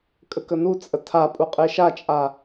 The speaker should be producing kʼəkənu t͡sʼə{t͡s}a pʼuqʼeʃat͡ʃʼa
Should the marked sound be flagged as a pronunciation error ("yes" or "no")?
yes